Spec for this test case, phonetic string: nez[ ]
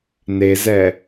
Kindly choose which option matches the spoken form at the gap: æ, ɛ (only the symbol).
ɛ